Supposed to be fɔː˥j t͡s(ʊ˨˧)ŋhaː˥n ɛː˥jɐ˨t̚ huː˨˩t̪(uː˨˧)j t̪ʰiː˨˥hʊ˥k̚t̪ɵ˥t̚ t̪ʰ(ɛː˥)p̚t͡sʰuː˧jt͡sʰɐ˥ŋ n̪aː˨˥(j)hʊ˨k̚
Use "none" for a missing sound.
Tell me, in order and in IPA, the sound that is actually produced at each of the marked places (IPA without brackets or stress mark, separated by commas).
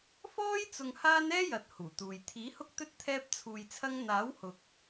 ʊ˧, uː˨, ɛː˥, w